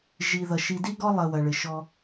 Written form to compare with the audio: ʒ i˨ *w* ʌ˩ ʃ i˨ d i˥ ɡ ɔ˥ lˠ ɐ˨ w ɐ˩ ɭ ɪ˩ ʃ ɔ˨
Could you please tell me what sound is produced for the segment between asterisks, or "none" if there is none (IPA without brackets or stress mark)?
ð